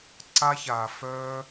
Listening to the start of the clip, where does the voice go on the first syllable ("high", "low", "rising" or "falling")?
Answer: high